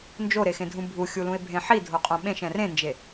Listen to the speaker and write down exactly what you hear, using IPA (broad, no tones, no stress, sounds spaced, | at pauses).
n d͡ʒ o ɾ e x ẽ dʱ ũ bʱ u xʲ u l ũ e̯ bʱ ẽ ħ i dʱ o qʼ õ ɓ ẽ ʃ ɛ̃ r ẽ n d͡ʒ e